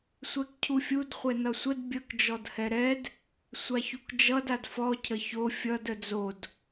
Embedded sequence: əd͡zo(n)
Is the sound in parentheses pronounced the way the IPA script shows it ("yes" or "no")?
no